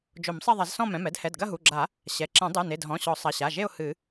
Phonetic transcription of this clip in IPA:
d͡ʒ o˨˩˦ m sˤ ɛ˥˧ ðˤ ɐ˨˩˦ z s ɔ̃˥˧ m ɛ̃˩˧˩ m ɛ˥˧ d h ɛ˩˧˩ d ɡ ɐ˥˧ ɦ u˩˧˩ ɡ͡ǁ a˨˩˦ | ɕ ɛ˩˧˩ ǁ ɛ̃˨˩˦ dˤ ɨ˩˧˩ n e˩˧˩ d ɦ ɔ̃˩˧˩ ɕ ɔ˨˩˦ sˤ ɐ˩˧˩ ɕ a˩˧˩ ʒ e˥˧ ʊ̯ h ɨ˨˩˦

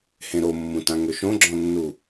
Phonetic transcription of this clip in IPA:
h ẽ ɾ o mː ũ t ã ŋ ø ʃ õ ɡ͡ǁ ɔ̃ nː u

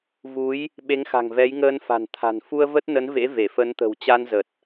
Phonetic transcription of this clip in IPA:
v u˨˦ j | ɓ e˨˦ ŋ x a̤˨˩ ŋ v ɛ˨˦ j ŋ əː˧ n f a̤˨˩ n t̪ʰ a̤˨˩ n f u˧ ə̯ v ə˦˥ t̚ n ə˨˦ n v ḛ˧˥ v e˧˩ f ə˨˦ n t̪ ə̤˨˩ w t͡ɕ a˧ n z ə˨˩ t̚

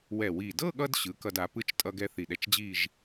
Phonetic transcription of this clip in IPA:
w ɛ˨˩ w i˨˩ d ɤ˥˧ ɠ ʌ˧ d ɕ ɯ˩˥ k ʌ˧ d a˩˥ p ɯ˧ t͡ʃ tʼ ʌ˧ ɡ ɛ˧ θ i˨˩ ɗ ɛ˧ t͡ʃ d͡ʑ i˥˧ ʒ

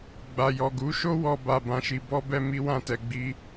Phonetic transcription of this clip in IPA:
ɡ͡b a˨ j ɔ˨ ɡ u˨˦ ʃ o˦ w ɔ˧ b a˧ b ã˧ ʃ i˧ b ɔ˦ b ɛ˦ m i˦ w ã˦˨ t ɛ˧ ɡ͡b i˦

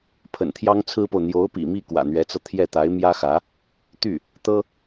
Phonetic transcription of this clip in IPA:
pʰ ə̰˨˩ n t̪ʰ j ɑ˥ ŋ t͡sʰ ɹ̩˥ p o˨ ʊ̯ n̪ j o˧˥ ʊ̯ p ḭ˨˩ m i˥˩ k w ä̰˨˩ n̪ ɥ ɛ˧˥ t͡s ɤ˧ t̪ʰ j ɛ˥˩ t̪ a˧˥ ɪ̯ m j ä˥ x ä˧˥ | t̪ y˥˩ | t̪ ɤ˥

